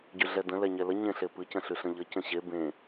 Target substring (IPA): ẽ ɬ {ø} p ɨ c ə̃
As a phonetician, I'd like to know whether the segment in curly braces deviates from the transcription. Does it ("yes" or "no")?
yes